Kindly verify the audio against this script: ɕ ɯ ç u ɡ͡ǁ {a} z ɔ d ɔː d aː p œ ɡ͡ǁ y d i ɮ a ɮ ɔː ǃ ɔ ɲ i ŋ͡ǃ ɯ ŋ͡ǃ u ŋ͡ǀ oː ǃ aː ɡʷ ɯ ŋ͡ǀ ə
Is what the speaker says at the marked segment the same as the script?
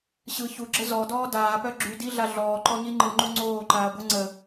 no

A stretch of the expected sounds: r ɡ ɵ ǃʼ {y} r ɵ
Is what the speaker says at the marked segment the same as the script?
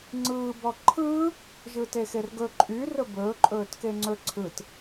yes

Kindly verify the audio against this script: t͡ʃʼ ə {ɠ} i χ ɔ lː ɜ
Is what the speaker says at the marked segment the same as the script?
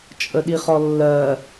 no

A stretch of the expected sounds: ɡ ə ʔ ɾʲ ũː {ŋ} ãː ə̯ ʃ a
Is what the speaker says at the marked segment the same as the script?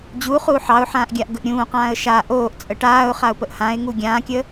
no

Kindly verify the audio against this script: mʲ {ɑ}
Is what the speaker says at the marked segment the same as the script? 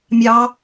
yes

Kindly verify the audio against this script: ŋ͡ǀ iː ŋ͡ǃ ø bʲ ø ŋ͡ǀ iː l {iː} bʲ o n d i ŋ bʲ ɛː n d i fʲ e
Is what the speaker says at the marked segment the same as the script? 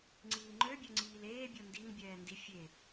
no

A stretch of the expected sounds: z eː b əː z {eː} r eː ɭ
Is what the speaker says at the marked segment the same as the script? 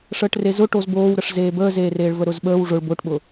yes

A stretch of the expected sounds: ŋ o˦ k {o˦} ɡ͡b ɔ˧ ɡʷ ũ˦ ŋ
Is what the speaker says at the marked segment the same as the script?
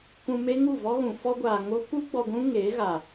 no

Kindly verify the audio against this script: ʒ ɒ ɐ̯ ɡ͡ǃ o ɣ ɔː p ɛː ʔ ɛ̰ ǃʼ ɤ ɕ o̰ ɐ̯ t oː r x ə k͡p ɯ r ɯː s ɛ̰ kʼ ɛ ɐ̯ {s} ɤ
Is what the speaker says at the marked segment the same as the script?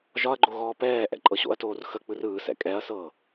yes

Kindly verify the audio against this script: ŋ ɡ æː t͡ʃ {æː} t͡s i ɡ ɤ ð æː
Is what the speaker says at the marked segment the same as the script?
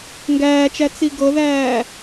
no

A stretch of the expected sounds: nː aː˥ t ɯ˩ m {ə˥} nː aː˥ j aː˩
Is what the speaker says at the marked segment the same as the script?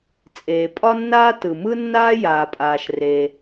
no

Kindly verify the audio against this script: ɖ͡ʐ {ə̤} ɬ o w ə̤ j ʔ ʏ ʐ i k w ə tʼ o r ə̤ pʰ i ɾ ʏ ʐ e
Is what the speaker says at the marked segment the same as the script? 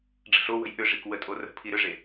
yes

